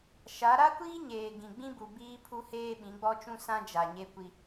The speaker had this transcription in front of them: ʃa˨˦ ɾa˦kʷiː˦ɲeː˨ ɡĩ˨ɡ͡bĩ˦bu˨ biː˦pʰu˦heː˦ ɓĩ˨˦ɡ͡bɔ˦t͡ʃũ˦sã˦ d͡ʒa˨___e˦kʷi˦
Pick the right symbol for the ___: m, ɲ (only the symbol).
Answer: ɲ